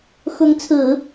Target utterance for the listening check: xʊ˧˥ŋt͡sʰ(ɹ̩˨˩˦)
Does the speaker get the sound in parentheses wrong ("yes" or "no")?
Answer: no